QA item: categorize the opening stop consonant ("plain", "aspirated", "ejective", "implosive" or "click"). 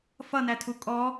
aspirated